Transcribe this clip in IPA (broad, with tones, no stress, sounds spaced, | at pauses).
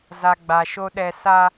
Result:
z a˨ ɡ͡b a˨ ʃ o˦ ɗ ɛ˦ s a˦